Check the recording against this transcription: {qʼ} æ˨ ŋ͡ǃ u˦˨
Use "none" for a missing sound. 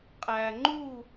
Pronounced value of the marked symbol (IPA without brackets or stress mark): qʼ